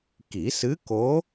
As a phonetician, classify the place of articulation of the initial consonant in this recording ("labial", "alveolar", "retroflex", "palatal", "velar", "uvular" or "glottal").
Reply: velar